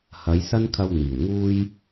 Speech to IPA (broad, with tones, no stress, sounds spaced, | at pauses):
h ɐ˨˧ j s ɐ˥ n kʰ ɐ˧ w n̪ iː˨˩ w ŋ uː˥ j